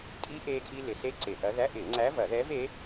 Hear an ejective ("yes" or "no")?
yes